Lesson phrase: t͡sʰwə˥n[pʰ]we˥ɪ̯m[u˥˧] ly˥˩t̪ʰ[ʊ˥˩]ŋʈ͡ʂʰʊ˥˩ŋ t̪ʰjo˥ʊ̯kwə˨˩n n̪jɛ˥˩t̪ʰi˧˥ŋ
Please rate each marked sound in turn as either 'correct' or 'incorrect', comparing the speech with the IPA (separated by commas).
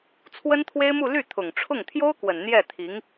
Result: incorrect, correct, incorrect